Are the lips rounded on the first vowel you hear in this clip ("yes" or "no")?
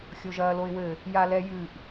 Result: yes